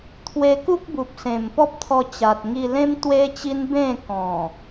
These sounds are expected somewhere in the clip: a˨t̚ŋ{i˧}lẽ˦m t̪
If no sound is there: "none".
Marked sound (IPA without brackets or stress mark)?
i˧